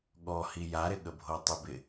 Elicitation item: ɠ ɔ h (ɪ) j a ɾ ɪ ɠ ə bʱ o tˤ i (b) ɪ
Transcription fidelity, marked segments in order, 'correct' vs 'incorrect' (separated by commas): incorrect, correct